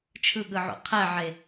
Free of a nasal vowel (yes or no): yes